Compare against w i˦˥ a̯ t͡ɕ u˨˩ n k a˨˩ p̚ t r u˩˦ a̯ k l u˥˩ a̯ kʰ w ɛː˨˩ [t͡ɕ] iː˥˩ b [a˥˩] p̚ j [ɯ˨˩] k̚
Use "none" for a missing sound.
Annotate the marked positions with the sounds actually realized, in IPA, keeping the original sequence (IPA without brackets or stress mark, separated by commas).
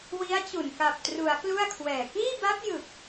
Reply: k, a˦˥, ɯ˨˩